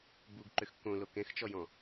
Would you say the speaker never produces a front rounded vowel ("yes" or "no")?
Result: no